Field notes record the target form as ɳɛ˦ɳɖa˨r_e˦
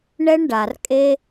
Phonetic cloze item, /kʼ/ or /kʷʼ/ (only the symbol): kʼ